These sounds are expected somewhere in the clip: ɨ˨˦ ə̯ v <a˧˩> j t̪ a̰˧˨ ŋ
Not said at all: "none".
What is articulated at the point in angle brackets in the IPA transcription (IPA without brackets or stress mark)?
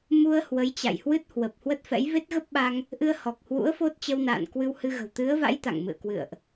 a̰˧˥